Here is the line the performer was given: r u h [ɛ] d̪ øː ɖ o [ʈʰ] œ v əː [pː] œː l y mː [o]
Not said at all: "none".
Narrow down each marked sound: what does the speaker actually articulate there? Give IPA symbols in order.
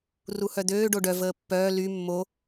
œ, ɖ, pː, o

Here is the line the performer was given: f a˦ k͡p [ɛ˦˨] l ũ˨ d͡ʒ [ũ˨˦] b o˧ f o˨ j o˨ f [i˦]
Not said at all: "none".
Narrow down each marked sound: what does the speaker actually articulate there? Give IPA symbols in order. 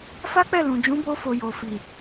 ɛ˦˨, ũ˨˦, i˨

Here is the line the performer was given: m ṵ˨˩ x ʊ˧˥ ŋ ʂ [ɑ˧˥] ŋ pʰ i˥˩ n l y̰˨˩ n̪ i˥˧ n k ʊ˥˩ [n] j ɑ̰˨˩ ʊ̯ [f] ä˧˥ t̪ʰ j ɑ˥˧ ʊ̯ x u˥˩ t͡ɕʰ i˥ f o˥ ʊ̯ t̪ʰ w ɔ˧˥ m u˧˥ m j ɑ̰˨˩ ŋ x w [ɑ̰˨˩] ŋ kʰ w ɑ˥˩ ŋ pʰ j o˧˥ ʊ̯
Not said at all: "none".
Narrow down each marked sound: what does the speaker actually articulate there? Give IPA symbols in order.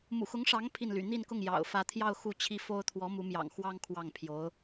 ɑ˧˥, ŋ, f, ɑ˥

